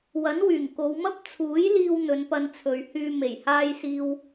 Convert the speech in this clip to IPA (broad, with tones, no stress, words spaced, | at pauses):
wɐ˨˥nwyː˨˩ŋko˨˧wmɐ˥p̚ t͡sʰuː˨˥jliː˧w n̪ɵ˨˧npɐ˧nt͡sʰɵ˨ɥhyː˧ me˨˩jhaː˧j siː˧w